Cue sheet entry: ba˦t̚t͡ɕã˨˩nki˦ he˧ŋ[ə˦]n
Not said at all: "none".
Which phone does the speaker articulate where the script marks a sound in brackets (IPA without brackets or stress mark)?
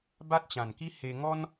ɔ˦